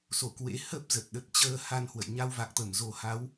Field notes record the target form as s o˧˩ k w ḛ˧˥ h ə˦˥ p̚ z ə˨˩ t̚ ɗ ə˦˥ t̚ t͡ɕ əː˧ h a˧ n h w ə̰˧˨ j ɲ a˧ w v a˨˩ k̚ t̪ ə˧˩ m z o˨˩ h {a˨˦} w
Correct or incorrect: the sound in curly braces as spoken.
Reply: correct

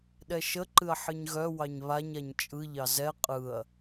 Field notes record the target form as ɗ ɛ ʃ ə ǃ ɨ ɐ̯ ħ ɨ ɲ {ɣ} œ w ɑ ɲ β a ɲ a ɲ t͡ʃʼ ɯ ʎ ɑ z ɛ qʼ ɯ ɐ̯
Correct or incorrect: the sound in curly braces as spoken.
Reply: correct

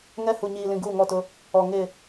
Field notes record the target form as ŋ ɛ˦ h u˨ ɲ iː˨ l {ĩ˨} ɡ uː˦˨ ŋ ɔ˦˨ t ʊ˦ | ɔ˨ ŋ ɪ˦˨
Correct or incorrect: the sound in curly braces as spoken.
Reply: correct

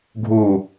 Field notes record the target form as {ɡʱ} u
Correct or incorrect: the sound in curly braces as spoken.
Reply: correct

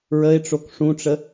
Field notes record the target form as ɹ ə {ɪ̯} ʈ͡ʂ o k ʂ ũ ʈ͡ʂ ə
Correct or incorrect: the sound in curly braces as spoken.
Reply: correct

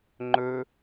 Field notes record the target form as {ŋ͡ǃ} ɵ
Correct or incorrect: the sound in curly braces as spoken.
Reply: correct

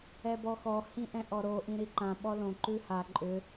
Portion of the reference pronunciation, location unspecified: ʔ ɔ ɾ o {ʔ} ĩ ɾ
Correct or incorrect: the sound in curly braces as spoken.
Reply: correct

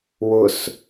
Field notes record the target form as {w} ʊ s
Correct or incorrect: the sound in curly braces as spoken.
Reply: correct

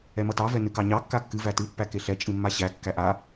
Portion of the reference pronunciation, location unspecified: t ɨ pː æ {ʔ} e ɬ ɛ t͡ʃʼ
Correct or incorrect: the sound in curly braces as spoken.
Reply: incorrect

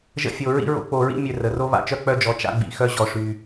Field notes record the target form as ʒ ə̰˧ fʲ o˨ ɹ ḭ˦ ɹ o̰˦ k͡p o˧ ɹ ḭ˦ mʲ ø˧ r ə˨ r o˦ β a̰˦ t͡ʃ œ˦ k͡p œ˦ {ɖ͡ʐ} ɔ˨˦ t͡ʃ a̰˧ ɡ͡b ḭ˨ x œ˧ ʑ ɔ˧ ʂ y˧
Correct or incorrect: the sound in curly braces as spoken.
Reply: incorrect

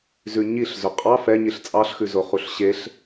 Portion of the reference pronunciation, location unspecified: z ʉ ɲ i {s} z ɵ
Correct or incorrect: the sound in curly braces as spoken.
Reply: incorrect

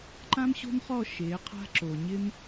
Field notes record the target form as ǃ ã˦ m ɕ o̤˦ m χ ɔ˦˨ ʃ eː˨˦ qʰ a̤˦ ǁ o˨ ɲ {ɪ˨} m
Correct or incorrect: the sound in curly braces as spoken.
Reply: incorrect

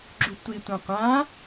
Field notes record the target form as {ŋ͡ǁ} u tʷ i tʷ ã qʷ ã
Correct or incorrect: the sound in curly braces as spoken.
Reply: incorrect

